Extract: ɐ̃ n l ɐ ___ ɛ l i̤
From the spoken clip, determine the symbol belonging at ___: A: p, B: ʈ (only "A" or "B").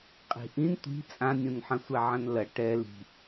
B